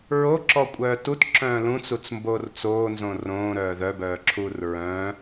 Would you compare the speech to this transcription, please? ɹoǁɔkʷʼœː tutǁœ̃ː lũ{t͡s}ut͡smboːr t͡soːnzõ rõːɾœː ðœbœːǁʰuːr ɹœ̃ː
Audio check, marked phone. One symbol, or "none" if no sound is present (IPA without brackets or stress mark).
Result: t͡s